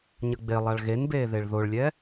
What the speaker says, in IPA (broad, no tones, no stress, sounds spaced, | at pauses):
ɲ ə ɡ͡b e lˠ a ɭ ɣ e n b eː ð e ɭ ð o ɭ lʲ ɛ